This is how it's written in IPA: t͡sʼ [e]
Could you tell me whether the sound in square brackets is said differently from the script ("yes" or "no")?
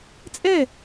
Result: yes